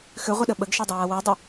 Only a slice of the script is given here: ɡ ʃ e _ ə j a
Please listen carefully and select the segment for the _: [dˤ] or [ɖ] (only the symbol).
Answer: dˤ